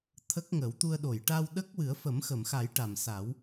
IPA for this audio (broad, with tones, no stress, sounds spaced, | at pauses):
t̪ʰ ə˦˥ k̚ ŋ ə˨˩˦ w t̪ u˧ ə̯ ɗ o˨˩˨ j ʈ a˧ w ɗ ə˦˥ k̚ w ɨ˨˩˦ ə̯ f ə˨˩˦ m x ə˨˩˨ m x a˨˩˦ j ʈ a˨˩ m s a˨˩˦ w